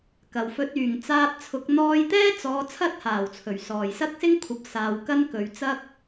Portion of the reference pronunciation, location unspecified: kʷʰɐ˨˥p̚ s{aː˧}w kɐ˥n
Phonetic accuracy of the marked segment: incorrect: aː˨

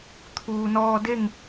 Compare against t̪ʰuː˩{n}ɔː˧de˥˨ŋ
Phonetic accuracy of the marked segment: correct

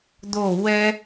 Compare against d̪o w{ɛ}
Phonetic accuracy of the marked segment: correct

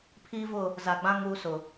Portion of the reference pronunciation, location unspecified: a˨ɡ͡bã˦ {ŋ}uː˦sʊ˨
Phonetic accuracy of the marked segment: correct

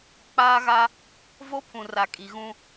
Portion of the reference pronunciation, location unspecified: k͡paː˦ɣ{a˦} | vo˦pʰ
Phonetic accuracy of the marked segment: correct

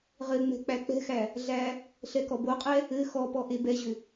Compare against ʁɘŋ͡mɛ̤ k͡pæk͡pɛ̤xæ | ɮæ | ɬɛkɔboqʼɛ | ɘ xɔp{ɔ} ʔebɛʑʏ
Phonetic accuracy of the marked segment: correct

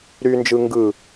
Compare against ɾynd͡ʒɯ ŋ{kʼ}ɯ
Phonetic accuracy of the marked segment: incorrect: ɡ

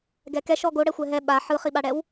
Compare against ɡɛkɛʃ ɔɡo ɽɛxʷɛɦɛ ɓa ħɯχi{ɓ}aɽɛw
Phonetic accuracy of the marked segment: correct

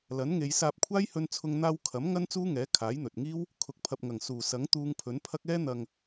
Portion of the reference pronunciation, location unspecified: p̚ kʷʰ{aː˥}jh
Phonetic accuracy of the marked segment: correct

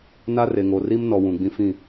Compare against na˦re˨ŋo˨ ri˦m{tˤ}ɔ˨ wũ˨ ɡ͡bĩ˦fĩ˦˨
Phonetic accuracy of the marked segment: incorrect: n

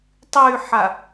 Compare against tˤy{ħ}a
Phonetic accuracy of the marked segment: correct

